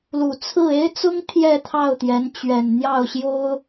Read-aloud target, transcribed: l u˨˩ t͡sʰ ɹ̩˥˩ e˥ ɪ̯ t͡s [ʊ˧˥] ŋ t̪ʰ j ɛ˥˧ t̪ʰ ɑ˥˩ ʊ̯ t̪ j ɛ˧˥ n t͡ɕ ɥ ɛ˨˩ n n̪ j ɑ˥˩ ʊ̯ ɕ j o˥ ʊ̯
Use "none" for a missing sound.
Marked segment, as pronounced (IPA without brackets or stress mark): ʊ˥